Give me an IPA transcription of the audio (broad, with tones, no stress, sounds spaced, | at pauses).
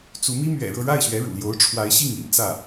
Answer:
t͡s u˧˥ m i˥ m ɥ ɛ̰˨˩ ɻ ɤ˥˧ ɻ a˥˩ ɪ̯ ɕ ɥ ɛ˧˥ ɻ ṵ˨˩ l j o˧˥ ʊ̯ ʈ͡ʂʰ w a˧˥ ɪ̯ ɕ i˥˩ ŋ ḭ˨˩ n t͡s ä˥˩